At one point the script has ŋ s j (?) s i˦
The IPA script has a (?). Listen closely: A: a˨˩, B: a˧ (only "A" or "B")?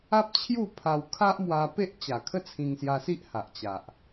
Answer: B